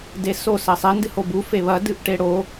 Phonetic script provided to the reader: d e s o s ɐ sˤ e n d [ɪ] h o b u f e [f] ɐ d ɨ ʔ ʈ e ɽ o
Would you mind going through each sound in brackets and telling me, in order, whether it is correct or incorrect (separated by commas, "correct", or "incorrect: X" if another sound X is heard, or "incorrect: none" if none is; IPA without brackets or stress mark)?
incorrect: ɨ, incorrect: β